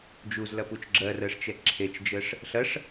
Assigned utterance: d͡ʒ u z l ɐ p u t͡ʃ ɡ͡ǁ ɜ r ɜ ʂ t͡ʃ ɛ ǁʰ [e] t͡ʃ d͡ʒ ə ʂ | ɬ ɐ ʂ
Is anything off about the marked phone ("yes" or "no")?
no